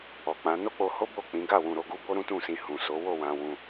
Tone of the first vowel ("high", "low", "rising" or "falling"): low